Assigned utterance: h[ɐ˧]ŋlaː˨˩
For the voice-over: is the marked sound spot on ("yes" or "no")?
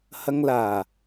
yes